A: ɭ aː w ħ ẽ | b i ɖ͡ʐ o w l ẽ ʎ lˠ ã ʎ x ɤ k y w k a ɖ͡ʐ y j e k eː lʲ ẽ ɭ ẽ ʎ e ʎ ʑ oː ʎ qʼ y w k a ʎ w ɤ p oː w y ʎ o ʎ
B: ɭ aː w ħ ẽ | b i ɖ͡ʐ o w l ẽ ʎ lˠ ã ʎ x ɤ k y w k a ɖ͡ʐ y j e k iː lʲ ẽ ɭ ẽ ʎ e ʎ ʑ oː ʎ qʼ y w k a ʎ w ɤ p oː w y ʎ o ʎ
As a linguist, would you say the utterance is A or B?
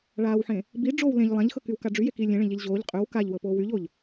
B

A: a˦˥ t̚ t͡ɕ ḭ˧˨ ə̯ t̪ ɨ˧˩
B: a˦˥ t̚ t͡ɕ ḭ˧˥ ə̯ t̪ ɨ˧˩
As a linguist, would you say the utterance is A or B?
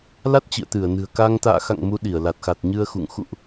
A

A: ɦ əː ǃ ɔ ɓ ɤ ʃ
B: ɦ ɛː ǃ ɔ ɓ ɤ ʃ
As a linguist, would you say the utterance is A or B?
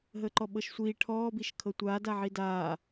A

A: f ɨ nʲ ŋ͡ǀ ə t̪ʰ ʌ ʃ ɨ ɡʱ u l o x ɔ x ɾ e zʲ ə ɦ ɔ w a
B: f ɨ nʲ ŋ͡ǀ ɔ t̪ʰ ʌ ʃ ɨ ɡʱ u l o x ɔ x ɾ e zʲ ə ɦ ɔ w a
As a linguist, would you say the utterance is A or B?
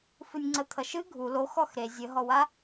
A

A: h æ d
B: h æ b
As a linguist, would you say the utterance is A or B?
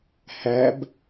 B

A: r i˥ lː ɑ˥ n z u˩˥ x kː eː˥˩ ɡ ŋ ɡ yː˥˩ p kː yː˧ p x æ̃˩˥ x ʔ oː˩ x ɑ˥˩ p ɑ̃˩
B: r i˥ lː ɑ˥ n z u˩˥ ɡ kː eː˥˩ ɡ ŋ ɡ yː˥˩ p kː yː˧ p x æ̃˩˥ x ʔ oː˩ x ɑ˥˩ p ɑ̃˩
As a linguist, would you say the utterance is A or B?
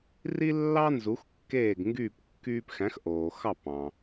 A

